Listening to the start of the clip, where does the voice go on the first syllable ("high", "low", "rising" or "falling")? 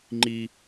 high